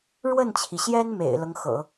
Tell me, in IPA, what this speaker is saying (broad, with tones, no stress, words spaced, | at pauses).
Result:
ɻwə˥˩nt͡ɕʰi˩ɕjɛ˥n mḛ˨˩ɪ̯lɤ˦ŋxɤ̰˨˩˦